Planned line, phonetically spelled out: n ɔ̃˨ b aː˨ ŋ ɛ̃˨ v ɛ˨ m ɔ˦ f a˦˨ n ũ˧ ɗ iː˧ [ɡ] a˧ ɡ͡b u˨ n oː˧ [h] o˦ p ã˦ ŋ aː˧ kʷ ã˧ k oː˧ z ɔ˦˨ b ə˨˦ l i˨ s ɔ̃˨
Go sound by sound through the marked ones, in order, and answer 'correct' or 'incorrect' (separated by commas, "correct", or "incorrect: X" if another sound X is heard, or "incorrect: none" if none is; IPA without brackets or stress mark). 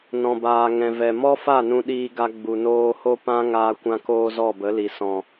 correct, correct